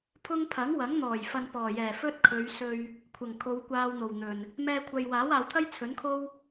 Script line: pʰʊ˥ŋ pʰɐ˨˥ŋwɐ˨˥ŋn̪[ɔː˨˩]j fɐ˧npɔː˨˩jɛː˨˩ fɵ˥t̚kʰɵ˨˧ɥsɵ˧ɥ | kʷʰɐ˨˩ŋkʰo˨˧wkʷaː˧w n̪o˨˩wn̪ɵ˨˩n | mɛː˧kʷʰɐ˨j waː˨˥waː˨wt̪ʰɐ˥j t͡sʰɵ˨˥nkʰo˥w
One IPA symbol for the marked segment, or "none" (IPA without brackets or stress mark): ɔː˨˩